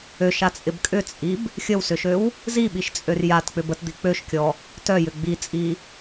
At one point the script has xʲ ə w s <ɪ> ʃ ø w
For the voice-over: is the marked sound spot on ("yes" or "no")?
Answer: no